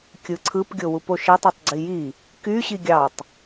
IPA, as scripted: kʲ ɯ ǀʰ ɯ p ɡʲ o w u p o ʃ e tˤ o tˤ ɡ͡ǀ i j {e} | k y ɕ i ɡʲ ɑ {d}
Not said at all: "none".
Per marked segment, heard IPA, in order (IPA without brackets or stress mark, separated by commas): i, tˤ